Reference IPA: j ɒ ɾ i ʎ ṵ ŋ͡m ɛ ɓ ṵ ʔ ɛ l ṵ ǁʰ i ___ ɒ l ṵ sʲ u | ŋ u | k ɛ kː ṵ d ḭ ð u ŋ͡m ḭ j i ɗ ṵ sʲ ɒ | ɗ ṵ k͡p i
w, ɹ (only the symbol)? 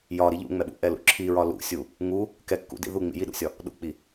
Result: ɹ